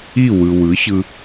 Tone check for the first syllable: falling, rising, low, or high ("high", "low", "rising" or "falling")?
falling